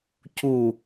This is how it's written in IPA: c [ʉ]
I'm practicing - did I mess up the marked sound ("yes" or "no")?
yes